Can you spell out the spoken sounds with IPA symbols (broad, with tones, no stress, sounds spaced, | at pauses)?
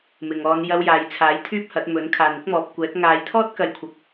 m ɪ˨ ŋ ɔː˨˧ n j ɐ˧ w j aː˨ j t͡sʰ aː˨˥ j t̪ʰ yː˥ p̚ h ɐ˨˥ t̚ m ɵ˨˥ n kʰ aː˨ n ɪ˥ k̚ m ɔː˨ p̚ kʷ ɛː˨˥ k̚ ŋ aː˨˧ j t̪ʰ ɔː˥ t̚ k ɐ˨˧ j kʷʰ ɐ˨˥ k̚